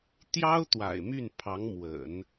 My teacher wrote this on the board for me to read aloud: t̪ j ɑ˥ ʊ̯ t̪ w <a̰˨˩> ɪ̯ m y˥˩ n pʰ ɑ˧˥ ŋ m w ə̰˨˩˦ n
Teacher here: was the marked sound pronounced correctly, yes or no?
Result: yes